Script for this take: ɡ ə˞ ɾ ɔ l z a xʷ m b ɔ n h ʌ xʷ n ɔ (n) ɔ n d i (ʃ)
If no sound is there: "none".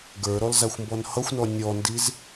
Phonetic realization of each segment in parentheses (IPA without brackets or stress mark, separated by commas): nʲ, z